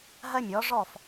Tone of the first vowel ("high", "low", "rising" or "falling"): high